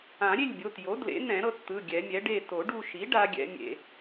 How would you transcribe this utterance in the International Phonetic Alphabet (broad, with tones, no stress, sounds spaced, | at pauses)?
ã˨˩˦ ɾʲ e˥˨ lʲ bʲ o˩˧˩ t j o˩˥ d l ḛ˩˥ n̪ ɛ̃˨˩˦ ɾ ɤ˧ t t̪ ɯ˩˧˩ ɡʲ ɛ˨˩˦ mʲ ɛ˩˥ ɖ e˥˨ t o˨˩˦ ɖ u˧ ʃ i˩˥ ɖ a˦˥ ɡʲ ɛ̰˦˥ mʲ ḛ˧